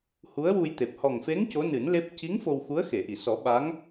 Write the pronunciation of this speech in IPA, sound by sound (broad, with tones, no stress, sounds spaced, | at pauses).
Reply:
h u˧˥ ə̯ w u˧ j t̪ e˨˩ p̚ h ɔ˨˩ ŋ f e˧˥ ŋ c o˧˥ n ɨ˨˩˦ n l e˦˥ p̚ c i˧˥ ŋ f o˧ w x u˧˥ ə̯ x e˨˩˨ ʔ i˨˩˨ s ɔ˨˩˦ ɓ a˧˥ ŋ